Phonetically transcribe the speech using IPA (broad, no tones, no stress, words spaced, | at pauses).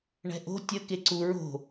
ɳɛ̤ʔo̤ tʲə keǀu ɹo̤